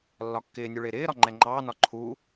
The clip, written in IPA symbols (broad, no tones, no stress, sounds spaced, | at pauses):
lː ɒ kː ɪː nʲ u ɭ ɪː ɾ ɪː ɾ ɒ ŋ͡ǃ ɛ ŋ͡ǃ ɑː n ɒ ǃʰ u